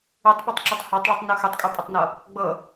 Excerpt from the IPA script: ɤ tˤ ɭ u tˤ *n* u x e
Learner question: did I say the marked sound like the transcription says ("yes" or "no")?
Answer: yes